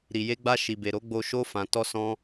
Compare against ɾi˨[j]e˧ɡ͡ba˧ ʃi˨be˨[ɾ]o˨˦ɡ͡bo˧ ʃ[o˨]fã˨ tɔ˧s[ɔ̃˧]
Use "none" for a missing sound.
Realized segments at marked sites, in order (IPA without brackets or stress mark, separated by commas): j, ɾ, o˧, ɔ̃˧